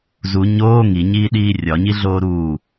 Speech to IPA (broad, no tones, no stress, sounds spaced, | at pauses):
z u ɲ oː ŋ i ɲ iː ɗ iː rʲ ɒ ɲ i ɮ oː ɾ uː